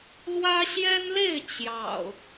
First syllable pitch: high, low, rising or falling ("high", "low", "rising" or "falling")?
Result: high